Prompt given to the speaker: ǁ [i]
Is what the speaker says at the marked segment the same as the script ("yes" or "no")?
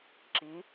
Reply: yes